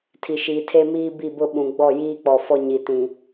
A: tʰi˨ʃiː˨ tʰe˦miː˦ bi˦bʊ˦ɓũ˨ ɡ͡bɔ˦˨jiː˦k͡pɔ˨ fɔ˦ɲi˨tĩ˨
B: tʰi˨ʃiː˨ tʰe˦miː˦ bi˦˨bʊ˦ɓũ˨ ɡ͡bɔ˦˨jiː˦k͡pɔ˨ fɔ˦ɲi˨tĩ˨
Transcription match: B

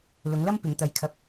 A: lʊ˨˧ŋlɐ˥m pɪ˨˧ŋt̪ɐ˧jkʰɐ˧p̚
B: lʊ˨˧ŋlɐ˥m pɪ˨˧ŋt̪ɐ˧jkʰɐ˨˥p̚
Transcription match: A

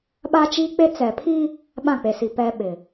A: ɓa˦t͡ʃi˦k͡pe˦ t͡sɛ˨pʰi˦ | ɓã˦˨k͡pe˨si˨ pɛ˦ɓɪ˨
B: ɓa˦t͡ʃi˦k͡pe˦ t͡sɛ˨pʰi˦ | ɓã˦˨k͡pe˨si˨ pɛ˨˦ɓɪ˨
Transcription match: A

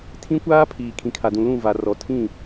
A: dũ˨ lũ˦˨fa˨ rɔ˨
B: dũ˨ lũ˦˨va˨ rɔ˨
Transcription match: B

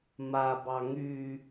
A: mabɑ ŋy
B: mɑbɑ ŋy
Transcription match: A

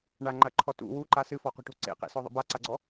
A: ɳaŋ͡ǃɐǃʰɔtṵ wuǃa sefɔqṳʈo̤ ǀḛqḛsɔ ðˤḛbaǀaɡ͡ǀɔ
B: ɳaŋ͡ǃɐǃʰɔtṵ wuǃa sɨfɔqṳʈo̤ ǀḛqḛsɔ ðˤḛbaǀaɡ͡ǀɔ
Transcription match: B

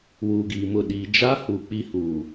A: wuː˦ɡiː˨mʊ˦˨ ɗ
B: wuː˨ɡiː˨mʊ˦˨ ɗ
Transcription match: B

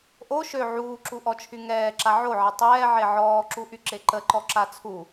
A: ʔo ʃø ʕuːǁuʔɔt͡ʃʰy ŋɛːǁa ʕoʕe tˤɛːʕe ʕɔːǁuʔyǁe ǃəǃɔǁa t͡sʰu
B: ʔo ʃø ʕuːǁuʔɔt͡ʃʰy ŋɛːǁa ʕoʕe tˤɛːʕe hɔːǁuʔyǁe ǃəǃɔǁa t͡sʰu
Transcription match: A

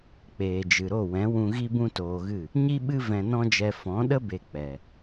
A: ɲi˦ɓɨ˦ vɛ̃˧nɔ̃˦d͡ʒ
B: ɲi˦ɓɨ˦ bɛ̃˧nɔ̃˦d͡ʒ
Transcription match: A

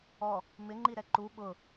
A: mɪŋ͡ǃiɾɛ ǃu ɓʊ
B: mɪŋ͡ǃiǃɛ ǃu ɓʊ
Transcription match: A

